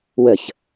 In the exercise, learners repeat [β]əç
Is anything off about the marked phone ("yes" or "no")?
yes